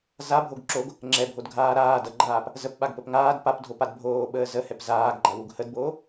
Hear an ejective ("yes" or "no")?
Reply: no